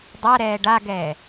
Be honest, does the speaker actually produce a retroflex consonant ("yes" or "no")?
yes